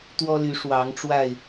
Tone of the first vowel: high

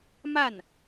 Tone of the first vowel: falling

